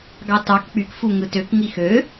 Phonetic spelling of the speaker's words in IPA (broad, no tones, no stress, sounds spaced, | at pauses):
ɡ ɑ t ɑ k k͡p y k f u ŋ ɯ t ø k ŋ i x ø